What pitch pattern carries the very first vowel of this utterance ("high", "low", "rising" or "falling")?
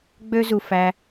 high